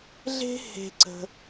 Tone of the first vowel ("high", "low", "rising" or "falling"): high